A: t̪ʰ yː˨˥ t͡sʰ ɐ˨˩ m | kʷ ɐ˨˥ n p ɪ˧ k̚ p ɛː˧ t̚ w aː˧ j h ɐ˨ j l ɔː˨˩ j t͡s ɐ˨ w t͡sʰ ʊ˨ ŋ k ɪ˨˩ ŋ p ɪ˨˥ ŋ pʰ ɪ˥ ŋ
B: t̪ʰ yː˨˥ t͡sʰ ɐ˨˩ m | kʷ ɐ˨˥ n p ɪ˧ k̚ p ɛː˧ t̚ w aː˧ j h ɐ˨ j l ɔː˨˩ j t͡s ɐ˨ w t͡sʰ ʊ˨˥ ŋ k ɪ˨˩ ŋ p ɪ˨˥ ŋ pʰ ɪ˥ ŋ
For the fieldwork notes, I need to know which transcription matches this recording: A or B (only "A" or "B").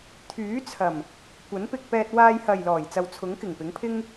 B